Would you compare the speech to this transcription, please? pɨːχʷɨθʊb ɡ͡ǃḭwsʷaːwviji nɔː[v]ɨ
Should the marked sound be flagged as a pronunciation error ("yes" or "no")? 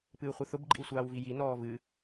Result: no